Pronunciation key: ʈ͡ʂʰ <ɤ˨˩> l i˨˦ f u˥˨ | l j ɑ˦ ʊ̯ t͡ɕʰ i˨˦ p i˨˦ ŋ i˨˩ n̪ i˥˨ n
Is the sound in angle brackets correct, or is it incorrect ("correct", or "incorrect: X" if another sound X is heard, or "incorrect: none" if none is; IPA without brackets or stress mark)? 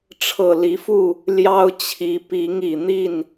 correct